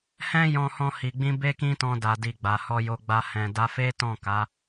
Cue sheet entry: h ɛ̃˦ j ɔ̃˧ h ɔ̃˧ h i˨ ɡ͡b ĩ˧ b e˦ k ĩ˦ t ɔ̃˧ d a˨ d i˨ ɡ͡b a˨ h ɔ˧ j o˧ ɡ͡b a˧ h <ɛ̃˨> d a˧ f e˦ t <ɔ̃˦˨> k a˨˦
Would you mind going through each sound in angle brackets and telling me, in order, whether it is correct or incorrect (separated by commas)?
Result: correct, correct